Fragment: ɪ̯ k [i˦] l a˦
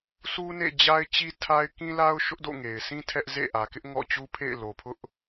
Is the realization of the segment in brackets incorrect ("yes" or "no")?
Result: yes